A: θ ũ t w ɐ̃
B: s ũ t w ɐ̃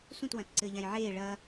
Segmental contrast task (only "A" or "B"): B